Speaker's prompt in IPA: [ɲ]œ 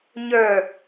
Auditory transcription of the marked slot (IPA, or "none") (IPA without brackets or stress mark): ɲ